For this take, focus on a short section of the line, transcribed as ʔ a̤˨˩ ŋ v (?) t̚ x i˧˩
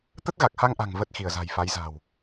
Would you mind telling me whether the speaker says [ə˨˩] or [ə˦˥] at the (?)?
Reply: ə˨˩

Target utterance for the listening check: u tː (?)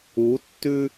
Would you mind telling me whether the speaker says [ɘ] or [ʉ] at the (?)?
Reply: ʉ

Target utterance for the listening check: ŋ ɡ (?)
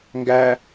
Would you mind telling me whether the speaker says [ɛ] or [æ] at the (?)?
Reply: æ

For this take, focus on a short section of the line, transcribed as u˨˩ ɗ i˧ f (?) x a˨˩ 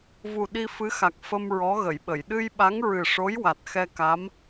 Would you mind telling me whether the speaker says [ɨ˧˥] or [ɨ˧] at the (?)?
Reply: ɨ˧˥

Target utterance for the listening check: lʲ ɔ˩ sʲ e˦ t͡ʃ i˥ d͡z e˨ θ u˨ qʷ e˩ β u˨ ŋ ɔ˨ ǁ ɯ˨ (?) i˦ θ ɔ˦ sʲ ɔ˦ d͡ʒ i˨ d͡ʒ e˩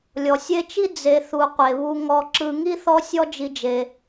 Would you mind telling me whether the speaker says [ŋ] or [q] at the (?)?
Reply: ŋ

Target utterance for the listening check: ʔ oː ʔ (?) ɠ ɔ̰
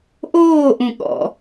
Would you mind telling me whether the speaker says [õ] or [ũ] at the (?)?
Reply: ũ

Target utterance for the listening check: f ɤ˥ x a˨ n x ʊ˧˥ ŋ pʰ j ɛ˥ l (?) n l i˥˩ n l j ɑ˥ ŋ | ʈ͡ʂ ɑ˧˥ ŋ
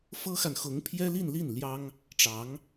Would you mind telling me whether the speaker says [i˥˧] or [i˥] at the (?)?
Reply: i˥˧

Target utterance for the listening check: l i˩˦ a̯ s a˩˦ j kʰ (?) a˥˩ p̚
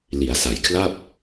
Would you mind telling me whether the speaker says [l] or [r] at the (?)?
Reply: l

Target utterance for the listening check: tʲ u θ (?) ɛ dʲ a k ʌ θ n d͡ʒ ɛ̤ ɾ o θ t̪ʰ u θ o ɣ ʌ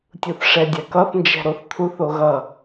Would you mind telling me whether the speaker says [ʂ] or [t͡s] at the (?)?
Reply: ʂ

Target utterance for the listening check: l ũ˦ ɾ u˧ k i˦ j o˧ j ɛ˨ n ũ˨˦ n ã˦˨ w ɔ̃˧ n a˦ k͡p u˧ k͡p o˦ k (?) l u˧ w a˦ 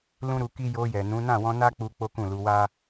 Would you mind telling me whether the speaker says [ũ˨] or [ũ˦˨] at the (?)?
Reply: ũ˦˨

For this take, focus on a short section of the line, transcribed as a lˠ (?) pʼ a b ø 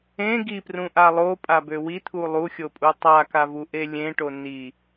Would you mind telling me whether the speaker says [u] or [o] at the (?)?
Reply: o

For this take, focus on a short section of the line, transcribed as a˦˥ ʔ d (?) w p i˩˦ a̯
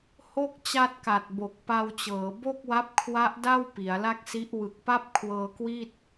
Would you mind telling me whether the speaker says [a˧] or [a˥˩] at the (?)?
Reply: a˥˩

